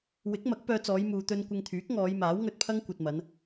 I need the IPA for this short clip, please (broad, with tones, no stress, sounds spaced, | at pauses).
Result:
w ɪ˨˥ k̚ m ɐ˨˥ k̚ p œː˧ t͡s ɔː˨˧ j m uː˨ t̪ ɵ˧ n kʷ ɪ˧ ŋ t̪ʰ yː˨˥ k̚ ŋ ɔː˨˧ j m aː˨˥ w ŋ ɵ˧ t̚ pʰ ɐ˥ ŋ kʷ ɐ˨ t̚ m ɐ˨˧ n